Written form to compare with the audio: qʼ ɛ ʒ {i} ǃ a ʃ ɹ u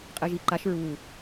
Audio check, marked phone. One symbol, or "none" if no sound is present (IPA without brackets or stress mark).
i